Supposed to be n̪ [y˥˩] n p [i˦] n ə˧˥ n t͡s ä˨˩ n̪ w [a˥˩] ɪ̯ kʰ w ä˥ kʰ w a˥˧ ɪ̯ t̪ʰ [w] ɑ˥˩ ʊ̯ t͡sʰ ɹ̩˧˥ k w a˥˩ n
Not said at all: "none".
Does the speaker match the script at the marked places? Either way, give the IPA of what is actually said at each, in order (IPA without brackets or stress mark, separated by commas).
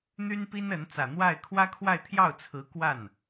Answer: y˥, i˥, a˥˩, j